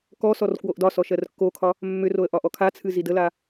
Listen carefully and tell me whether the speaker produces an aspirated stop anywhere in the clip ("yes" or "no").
yes